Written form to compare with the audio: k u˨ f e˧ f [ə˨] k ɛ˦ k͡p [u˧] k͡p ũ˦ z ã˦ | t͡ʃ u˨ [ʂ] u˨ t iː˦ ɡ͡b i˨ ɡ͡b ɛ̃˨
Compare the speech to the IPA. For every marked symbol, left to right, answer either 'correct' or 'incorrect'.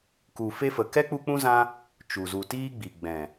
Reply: correct, correct, incorrect

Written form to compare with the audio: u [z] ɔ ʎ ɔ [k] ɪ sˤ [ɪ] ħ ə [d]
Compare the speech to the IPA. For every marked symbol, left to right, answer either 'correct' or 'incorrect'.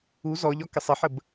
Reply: correct, correct, correct, incorrect

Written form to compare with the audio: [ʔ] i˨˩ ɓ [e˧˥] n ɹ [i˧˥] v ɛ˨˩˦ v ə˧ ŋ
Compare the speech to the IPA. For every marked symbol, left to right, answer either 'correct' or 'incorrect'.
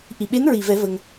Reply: correct, correct, incorrect

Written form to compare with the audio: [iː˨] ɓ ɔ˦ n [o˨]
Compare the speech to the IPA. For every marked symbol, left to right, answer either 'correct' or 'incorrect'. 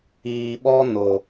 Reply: correct, correct

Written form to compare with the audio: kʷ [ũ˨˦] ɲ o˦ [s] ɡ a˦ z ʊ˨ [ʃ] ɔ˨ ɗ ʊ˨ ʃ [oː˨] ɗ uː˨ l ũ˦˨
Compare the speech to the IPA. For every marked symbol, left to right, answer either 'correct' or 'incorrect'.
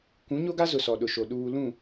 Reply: correct, incorrect, incorrect, incorrect

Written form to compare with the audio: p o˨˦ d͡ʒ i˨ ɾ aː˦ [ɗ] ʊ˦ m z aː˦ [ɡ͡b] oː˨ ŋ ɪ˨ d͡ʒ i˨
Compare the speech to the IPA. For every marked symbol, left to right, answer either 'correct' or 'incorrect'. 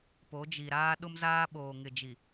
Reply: correct, incorrect

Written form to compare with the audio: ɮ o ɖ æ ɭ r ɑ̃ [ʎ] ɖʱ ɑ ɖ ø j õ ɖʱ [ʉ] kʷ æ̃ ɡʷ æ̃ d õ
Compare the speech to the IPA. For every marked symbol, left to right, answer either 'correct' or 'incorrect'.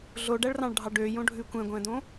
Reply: incorrect, correct

